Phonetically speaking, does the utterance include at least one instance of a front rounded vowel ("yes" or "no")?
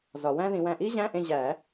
no